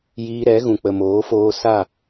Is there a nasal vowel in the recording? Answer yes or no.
yes